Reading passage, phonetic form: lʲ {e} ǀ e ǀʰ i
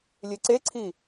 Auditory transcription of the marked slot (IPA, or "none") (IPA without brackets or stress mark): e